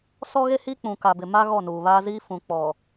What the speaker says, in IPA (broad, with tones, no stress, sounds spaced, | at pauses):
s ɔ˦ ɣ e˦ h i˦ k͡p ũ˨ k a˨ b ɪ˨ m a˦ ɣ ɔ˦˨ n uː˨ β a˦ z iː˦ f ũ˨ k͡p ɔ˨